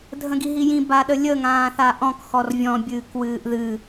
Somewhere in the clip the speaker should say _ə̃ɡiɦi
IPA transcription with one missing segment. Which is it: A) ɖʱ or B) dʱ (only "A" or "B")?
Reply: B